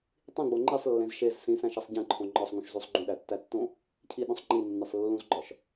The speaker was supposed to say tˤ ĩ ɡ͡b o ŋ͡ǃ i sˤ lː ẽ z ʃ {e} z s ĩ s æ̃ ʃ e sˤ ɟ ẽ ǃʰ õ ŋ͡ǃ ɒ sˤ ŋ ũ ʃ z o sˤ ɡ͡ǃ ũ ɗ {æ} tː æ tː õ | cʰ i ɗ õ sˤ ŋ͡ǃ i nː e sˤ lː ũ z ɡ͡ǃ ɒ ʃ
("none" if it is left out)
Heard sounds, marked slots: e, æ

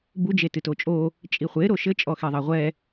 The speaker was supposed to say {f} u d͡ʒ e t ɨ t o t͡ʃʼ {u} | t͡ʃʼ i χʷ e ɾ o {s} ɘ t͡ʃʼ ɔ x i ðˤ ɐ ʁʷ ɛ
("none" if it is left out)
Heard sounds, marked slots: b, o, ʃ

